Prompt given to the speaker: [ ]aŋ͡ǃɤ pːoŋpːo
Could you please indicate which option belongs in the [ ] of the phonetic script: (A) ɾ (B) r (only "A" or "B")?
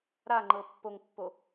A